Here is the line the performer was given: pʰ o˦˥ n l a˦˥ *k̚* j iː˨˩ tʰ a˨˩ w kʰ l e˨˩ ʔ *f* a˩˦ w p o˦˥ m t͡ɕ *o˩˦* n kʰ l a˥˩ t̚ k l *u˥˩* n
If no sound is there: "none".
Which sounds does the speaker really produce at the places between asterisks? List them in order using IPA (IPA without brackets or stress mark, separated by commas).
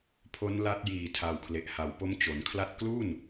t̚, h, o˩˦, u˥˩